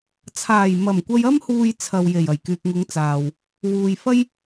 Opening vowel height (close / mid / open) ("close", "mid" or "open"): open